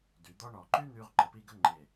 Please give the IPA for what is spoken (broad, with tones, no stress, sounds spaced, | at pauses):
d y˩˧ d̪ ɔ˥ ɳ ɔ˧˩ ǃ y˥ n̪ y˧ ʁ ǃ ə˩˧ p i˥˧ ɡ ə˥ ŋ͡ǃ e˧˩